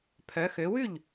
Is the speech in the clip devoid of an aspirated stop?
no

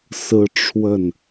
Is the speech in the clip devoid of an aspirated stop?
no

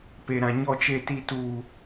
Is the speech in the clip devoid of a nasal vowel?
no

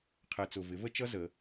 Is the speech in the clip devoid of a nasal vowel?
yes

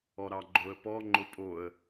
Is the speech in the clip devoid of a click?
no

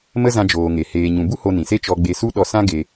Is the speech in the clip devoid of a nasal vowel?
no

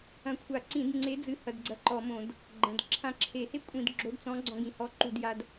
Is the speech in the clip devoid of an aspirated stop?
no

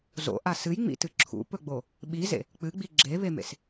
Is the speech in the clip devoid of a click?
no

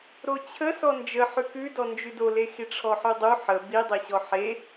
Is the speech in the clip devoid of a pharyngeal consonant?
no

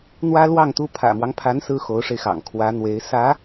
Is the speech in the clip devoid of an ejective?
yes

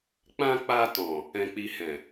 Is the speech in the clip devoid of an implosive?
yes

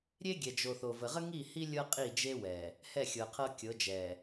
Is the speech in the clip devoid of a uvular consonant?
no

